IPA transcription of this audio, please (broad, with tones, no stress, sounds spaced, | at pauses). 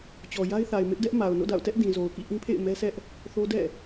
t͡ɕ ɔ˨ j a˦ ɪ̯ θ a˨ ɪ̯ m ɪ˦ ʔ d ɛ˦ ʔ m a˨ ʊ̯ n o̰˦˨ d a̰˦˨ ʊ̯ t ɛ˦ ʔ d ĩ˨ z o˨ ʊ̯ k ḭ˦˨ ʔ ĩ˦ pʰ ḛ˦˨ ɪ̯ m ɛ˦ s ɛ˦ ʔ | θ o˦ d ɛ̰˦˨